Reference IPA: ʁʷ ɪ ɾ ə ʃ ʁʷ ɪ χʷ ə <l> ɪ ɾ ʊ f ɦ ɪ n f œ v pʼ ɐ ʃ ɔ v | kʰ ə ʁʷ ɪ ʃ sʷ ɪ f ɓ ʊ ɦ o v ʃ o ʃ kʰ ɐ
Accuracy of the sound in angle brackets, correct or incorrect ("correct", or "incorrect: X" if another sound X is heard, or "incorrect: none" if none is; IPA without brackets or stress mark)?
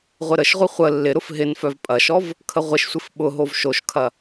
incorrect: lː